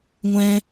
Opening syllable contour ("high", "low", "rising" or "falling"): high